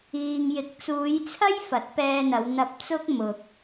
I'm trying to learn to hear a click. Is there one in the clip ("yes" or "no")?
no